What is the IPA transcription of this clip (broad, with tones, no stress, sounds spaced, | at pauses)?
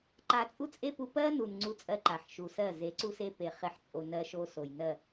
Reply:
ǃ a˧ t͡sʼ u˦ t͡sʼ e˦ p u˧ p ɜ˦ n u˨ n ŋ͡ǀ u˦˨ t͡sʼ ɜ˦ ǃ a˨ ħ ʃ u˨ s ɜ˦˨ z e˨˦ ǀ u˦ s e˦ p e˧ χ e˨ ħ t͡sʼ o˨ n ɜ˧ ʃ o˧ s o˨ j n ɜ˦˨